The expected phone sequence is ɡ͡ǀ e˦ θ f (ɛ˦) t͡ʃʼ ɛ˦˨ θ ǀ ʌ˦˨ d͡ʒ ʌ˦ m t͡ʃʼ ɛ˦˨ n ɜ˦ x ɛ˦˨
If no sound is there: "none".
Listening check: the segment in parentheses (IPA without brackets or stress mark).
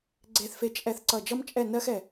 e˦